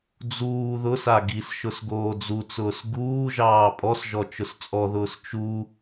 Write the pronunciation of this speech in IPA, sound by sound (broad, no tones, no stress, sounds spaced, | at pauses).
d͡z uː ð ʊ s a ɡ i s ʃ ʊ s ɡ oː d͡z u t͡s ʊː s ɡ uː ʒ ɑː pʼ ɔ s ʒ ɔ t͡ʃ ʊ s t͡sʼ ɔ ð ʊː s t͡ʃ u